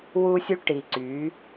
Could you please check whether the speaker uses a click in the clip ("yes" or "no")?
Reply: yes